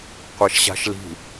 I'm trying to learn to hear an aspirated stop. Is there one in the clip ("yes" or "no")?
no